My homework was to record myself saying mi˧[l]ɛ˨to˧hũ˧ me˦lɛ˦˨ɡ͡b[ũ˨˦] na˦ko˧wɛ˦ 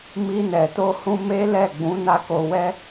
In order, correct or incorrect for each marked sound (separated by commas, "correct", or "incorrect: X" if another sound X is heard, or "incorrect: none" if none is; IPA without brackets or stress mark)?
incorrect: n, correct